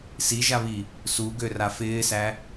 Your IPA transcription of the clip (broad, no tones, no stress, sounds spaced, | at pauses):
s i ʒ a β i | s u ɡ ø r a f ɪː s æ